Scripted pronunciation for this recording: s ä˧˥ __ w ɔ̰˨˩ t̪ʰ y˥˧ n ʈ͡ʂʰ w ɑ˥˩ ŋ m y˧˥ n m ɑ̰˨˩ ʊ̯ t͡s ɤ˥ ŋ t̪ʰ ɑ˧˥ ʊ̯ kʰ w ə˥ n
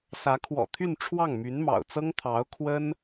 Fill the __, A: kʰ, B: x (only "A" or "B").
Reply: A